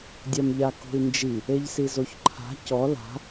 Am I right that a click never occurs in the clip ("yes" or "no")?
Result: no